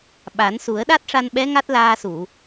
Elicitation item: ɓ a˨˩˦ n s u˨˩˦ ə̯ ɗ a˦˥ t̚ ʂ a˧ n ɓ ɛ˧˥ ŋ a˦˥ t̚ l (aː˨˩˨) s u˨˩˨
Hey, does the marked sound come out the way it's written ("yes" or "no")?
no